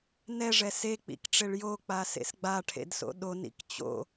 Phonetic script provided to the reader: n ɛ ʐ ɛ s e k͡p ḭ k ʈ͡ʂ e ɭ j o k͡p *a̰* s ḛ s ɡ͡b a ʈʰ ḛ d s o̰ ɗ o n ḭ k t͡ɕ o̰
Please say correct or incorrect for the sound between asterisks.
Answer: incorrect